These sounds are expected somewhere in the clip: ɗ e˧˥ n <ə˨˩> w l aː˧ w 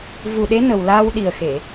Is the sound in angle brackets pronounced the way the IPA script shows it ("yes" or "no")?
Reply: yes